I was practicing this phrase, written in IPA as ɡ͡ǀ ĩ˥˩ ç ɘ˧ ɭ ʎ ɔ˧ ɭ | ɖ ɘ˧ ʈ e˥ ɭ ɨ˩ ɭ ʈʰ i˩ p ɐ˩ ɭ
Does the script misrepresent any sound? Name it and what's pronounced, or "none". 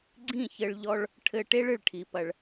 ɖ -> ʈʰ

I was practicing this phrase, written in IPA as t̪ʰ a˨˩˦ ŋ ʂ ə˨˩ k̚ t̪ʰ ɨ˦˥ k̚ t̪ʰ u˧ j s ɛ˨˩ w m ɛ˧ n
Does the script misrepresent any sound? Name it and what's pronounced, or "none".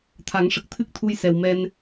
none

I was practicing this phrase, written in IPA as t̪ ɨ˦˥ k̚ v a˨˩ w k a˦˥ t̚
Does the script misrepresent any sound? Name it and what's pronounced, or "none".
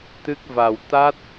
k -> t̪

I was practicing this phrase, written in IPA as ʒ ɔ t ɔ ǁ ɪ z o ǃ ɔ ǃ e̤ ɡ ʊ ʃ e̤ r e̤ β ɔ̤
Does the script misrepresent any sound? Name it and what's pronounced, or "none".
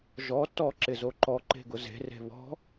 ʃ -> z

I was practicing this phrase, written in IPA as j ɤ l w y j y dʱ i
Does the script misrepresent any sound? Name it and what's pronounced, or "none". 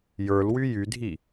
ɤ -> ə˞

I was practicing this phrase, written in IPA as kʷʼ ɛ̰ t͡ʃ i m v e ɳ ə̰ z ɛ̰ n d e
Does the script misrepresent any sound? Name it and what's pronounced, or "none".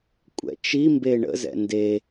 v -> b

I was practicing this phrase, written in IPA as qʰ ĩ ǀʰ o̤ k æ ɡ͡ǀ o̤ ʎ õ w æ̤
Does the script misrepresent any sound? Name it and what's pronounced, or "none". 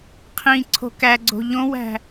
none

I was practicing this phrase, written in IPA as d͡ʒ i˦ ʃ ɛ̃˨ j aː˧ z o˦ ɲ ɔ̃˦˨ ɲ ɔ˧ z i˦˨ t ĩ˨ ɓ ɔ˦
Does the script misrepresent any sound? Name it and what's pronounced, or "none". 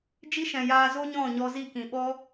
t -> k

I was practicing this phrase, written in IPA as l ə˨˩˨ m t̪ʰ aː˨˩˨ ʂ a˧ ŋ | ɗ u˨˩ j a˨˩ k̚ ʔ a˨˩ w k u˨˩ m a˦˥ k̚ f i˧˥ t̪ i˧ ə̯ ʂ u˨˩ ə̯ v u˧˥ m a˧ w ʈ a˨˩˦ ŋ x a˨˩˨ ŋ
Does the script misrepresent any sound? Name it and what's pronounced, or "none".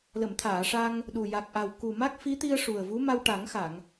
none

